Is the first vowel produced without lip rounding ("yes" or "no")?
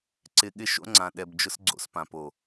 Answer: yes